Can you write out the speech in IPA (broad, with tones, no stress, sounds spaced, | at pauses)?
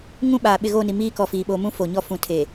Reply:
ŋ ũ˦ ɓ aː˨ ɓ ɪ˦˨ ɣ o˦˨ n i˨ m iː˦ k ɔ˨ f iː˨ ɓ oː˨ m ũ˦ f o˨ ɲ ɔ˦ f ũ˨ tʰ e˨